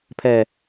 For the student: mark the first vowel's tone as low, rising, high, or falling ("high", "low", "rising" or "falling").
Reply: low